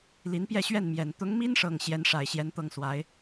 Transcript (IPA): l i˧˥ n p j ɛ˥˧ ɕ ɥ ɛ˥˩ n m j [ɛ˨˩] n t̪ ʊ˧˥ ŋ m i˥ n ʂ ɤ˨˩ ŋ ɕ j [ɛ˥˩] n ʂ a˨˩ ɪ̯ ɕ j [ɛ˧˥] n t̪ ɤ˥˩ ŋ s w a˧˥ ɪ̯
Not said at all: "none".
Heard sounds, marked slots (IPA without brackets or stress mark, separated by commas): ɛ˨˩, ɛ˧˥, ɛ˧˥